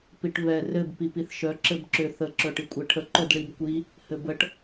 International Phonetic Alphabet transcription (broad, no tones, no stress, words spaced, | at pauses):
piʈβɛ rɘb pipiθʃœ ǁɘbǁʏ θə ǁœʈikʷʼeʈʰə ǃœdɭibkʷi | hɘbəʈ